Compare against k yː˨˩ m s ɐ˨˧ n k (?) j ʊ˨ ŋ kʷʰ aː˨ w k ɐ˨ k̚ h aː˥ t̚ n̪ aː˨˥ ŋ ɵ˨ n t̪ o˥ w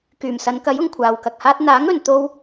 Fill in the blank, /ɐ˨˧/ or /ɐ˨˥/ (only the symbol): ɐ˨˥